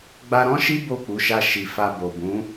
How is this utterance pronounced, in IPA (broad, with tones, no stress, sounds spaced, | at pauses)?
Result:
ɡ͡b a˧ ɾ ɔ̃˦ ʃ i˦ b o˦˨ k͡p u˨˦ ʃ a˧ ʃ i˨ f a˧ b o˨ b ũ˨˦